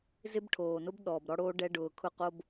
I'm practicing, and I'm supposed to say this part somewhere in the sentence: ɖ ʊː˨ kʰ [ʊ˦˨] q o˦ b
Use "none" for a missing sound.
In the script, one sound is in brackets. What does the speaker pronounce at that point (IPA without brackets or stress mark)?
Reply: ʊ˦˨